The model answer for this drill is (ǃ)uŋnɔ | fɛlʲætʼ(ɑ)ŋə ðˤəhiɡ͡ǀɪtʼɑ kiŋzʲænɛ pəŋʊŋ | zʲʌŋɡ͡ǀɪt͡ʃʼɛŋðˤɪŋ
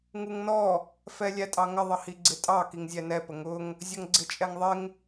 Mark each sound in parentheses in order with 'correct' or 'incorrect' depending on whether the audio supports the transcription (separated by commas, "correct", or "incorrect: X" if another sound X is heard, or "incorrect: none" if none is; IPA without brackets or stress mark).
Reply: incorrect: ŋ, correct